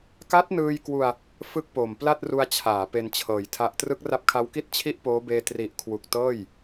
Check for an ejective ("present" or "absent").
absent